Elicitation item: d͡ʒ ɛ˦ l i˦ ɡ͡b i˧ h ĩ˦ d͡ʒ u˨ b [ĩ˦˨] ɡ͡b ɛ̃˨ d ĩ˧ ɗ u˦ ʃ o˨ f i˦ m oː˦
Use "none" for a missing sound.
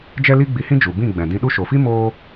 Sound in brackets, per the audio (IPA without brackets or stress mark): ĩ˦˨